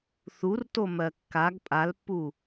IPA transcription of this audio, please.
θ u r t o m ɜ kː a ɡ pʼ a l pː u

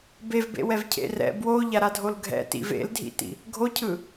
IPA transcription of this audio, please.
b e v b ḛ w ɛ v cʰ ḛ r ɛ̰ b w o ʎ a ɾ a dʱ o l ɡʱ ɛ̰ t ḭ v ḛ l dʱ ḭ t ḭ | ɡʱ o cʰ ɯ

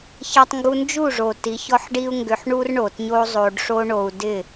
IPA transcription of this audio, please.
ç ɐ˧ tˤ ŋ ɡ u˧ n d͡ʒ u˦˨ ʐ o˨ t i˨˦ ç ɔ˦ ħ ɖ i˦ u̯ ŋ ɡ ʏ˧ ħ ɳ u˦ r ɳ o˨ t ɲ o˦ zˤ o˧ ɖ ʂ o˦ ɳ o˧ u̯ d ɪ˦˨

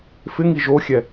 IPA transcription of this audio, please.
f ɪ ŋ i ʒ o xʲ ɛ

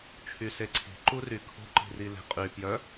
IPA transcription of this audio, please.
t͡ʃʰ y s e ǀʰ i̤ ǃ u r y kʰ ṳ ǃ i̤ r i l e̤ qʼ y p j œ

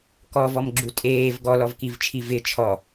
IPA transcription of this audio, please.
k ɔ v ɔ m ɡ͡ǁ u tʼ eː v ɡ ɔ l ɔ v k i v t͡ʃʰ i v ɪ t͡ʃʰ ɔ

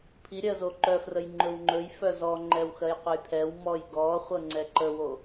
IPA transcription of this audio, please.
pʰ i ɾʲ ɜ z o ǃ œ f r ə j ŋ͡ǃ ɵ w ŋ͡ǃ ɵ j f œ z ɔ ŋ͡ǃ ɛ w x ɜ j qʷ ɤ j pʰ ɛ w m ɔ j ɡ ɔ χʷ ɤ ŋ͡ǀ ɛ ǃ ə w o

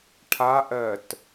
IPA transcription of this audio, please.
ʈʰ a ʔ ɜː t

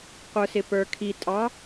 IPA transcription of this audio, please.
qʷ ə˞ s ɪ p ə˞ kʰ i tʼ ɑ

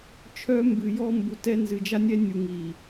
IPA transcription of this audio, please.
t͡ʃʰ œ˦ m b ɨ˨ j ɔ˦ m b u˨ t ɛ˦ n z ɨ˨ d͡ʒ a˦ nʲ ɛ˦ nʲ u˨ ŋ i˨

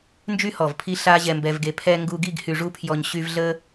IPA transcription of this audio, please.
n d͡ʒ y˧ h ɔ˨ v pʰ i˦ ɬ a˦ ʑ ɛ˧ m b ɛ˧ v ɡ e˧ pʰ ɛ˧ ŋ ɡ u˧ ɡ i˦˨ ɡ h y˨ ʐ u˧ pʰ j ɔ˨ ɲ ɕ y˧ v ɮ ə˦

